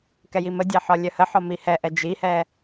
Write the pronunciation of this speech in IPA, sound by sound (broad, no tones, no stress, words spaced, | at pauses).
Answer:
kɛjimədʲæ ħɒlʲœhəħɒ mihɛʔɛ d͡ʒihɛ